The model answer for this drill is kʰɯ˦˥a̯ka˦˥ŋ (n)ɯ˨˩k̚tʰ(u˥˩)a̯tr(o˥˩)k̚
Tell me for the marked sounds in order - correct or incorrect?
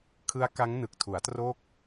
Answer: correct, incorrect, correct

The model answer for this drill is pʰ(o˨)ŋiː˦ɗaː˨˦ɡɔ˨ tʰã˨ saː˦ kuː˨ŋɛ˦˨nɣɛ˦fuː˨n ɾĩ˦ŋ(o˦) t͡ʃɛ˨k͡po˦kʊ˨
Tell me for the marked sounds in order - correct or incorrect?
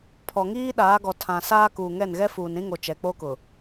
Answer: incorrect, incorrect

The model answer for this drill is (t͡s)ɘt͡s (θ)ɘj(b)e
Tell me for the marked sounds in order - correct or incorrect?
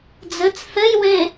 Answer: incorrect, correct, incorrect

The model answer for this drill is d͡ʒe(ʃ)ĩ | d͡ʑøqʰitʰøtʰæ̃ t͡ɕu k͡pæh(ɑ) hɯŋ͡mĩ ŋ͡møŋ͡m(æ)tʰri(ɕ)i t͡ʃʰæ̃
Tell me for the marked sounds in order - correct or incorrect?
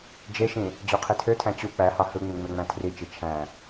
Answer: correct, correct, incorrect, incorrect

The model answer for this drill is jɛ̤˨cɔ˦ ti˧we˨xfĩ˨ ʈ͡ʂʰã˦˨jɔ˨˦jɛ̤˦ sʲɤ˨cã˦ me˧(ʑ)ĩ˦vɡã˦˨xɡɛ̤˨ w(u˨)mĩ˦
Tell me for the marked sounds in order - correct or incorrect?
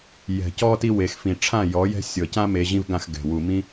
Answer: correct, correct

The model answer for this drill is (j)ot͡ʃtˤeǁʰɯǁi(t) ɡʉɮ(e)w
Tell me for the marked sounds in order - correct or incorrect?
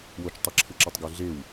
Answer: incorrect, incorrect, correct

